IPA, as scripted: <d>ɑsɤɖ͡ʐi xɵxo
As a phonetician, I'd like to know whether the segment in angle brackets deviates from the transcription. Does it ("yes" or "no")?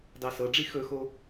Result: no